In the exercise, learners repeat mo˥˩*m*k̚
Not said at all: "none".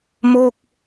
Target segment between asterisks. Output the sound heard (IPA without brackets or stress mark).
none